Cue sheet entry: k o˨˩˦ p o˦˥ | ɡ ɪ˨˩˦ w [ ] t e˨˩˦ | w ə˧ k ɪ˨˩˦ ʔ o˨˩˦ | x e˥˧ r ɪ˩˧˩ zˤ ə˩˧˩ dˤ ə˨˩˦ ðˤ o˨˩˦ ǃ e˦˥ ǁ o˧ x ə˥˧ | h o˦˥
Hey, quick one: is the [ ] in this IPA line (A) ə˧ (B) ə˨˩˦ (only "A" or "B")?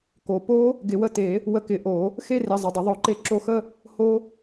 A